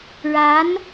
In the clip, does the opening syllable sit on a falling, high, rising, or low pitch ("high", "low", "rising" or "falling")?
rising